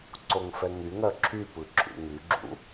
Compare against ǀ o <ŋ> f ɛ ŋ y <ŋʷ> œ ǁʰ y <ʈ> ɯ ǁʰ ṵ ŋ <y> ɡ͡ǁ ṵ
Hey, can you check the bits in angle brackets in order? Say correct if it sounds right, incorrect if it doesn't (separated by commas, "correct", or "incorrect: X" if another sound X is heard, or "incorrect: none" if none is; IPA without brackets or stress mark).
correct, incorrect: ŋ, incorrect: p, correct